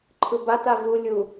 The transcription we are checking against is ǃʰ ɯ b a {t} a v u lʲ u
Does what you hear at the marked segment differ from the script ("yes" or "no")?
no